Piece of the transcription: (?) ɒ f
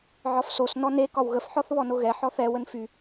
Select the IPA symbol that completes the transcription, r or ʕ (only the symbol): ʕ